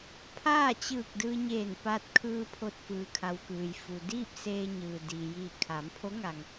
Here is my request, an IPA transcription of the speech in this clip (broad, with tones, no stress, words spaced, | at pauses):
pʰaː˥˨t͡ɕɯː˧˩k̚ dɯː˧ɲeː˧˩npa˧t̚kʰɯː˧ pʰo˧t̚fɯː˩kʰa˩w kɯː˩jfu˩ diː˥˨p̚ seː˧ ɲɯː˩diː˩jiː˧˩ kʰaː˩˧mpʰo˧˥ŋa˩ŋ